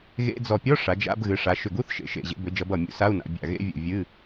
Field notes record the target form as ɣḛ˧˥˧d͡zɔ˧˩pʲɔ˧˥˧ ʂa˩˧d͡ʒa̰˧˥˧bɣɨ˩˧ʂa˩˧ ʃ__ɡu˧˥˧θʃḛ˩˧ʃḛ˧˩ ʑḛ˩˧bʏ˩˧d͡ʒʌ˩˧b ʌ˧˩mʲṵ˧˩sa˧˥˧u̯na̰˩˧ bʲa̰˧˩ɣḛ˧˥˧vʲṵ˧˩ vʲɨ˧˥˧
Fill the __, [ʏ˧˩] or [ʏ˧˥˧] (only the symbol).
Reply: ʏ˧˩